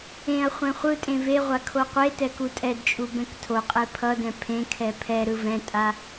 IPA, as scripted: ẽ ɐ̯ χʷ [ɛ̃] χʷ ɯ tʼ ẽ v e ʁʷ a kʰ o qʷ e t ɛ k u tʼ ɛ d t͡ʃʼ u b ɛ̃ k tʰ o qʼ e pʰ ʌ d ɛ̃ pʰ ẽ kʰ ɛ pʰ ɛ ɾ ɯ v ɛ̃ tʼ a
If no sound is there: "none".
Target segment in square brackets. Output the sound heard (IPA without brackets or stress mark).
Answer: ɛ̃